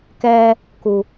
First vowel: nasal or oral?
oral